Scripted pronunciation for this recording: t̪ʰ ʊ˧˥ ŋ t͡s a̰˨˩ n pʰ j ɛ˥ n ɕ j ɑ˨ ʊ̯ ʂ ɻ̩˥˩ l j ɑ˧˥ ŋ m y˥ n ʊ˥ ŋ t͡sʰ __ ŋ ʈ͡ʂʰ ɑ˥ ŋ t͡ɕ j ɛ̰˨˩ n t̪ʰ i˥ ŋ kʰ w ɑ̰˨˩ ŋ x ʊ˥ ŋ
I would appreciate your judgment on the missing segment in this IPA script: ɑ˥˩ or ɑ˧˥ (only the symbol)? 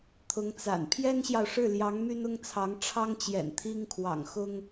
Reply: ɑ˧˥